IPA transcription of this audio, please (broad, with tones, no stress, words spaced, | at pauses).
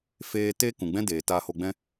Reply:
feː˦ teː˦kũ˨ɡ͡bɛ̃˦ deː˨taː˧ho˧ɡ͡bɛ̃˦